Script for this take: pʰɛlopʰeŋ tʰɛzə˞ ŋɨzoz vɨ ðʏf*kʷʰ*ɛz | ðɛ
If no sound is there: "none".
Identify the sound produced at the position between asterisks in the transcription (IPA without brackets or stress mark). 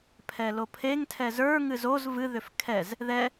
kʰ